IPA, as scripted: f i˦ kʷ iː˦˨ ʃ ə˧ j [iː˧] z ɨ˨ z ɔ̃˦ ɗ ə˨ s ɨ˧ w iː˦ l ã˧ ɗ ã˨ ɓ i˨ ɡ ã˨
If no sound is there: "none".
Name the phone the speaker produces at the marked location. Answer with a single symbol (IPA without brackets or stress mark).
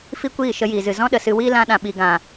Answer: iː˨